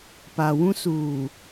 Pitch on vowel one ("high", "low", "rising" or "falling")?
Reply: low